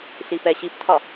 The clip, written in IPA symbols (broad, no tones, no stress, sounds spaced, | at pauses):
ɬ i p ɛ ɕ i p tʰ ɒ